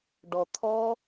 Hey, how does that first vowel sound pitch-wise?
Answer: low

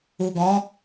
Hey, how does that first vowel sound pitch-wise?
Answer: low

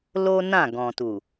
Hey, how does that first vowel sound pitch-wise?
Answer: high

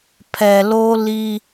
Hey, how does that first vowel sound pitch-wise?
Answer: low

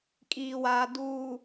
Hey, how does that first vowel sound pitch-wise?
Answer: low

